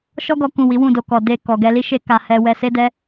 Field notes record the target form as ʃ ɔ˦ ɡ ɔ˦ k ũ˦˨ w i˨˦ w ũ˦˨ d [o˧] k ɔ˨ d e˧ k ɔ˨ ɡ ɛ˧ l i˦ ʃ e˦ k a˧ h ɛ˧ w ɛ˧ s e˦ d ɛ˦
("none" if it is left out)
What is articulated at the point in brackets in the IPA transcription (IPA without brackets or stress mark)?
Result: o˧